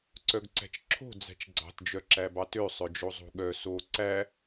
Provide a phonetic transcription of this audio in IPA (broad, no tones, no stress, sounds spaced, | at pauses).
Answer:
ǀ œ ɡ ǀ æ̤ t͡ʃ ǁʰ o̤ d͡z æ̤ t͡ʃ ɡ͡ǀ ɑ̤ t d͡ʒ œ ǁ æ b ɑ t ø sˤ œ d͡ʒ o zˤ o̤ ɠ œ s o ǀ æ